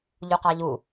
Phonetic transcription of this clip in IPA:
ʎuqɑʎu

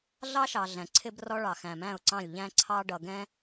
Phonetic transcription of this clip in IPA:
ɮɑ˦ʃɑ˨ ɮæ̃˨ǀʰɪ˦brɔ˦ɭɑ˨ xæ̃˨mæ̃˦˨ʊ̯ǀɑ̃˦˨lʲʎæ̃˦ ǀʰɑ˦ ɖʌ˨ɡɛ̃˦

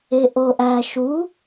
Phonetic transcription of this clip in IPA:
eʔoʔæ ʃu

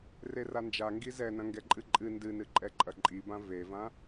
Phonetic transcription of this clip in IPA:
rerand͡ʒa ŋɡizɛnɐ̃ ŋɡɛǃʼɨǃʼɨ ndɨnɨǃʼɛ ǃʼɐǃʼibã vevã

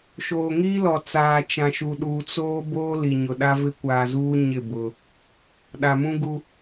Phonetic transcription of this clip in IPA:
ʃoː˨ŋiː˦lɔ˨ t͡saː˨t͡ʃã˨ʃu˨ɗuː˨ t͡soː˦boː˦ li˨ɲʊ˨ɗa˦ vɪ˦kʷaː˨zuː˦ ɲɪ˦˨ bʊ˦ | ɗa˨mũ˦ɡu˦

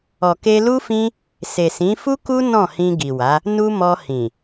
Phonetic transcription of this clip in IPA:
ɔ˨ke˧lu˦fĩ˦ | se˨sĩ˨˦ fu˦ku˦ nɔ̃˦˨hĩ˧ɡi˨wa˨˦ | nu˧ mɔ˧hĩ˨

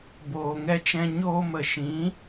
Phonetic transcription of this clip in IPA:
boː˨ŋɛ˧t͡ʃɛ̃˧ ɲoː˧mə˨ʃĩ˨˦

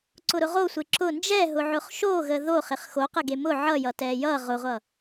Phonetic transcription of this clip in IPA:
ǀʊɾʊʁosʷe ǁʊ nd͡ʒɛɦʊʕʊχ ʃoɣə ðoχɪχ xoqəɡe mʊ ʕʌjʌtɛ jʌ ʁʊʁʷʌ

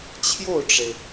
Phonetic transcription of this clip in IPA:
t͡ɕʰjo˥˩ʊ̯ʈ͡ʂe˩ɪ̯

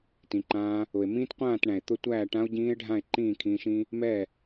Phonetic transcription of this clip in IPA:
tĩ˨ǃãː˧ | ʊ˨e̯mĩː˦tqʷãː˦˨tɳæ̃˨e̯ t̪ʊ˦tʷæː˦˨ ʈã˧o̯ɟĩː˧e̯ ɖʱã˦˨e̯ ǃĩː˦˨kʰĩː˧ʃĩ˦ | mɛ˦˨

